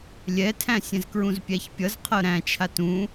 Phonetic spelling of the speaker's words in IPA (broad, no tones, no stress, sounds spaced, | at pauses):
lʲ ɛ tʰ æ̃ sʲ ɛ̃ z k ɹ ũ z pʲ æ ç pʲ ʌ z qʰ ɤ ɾ æ̃ t͡ʃʰ a t ũ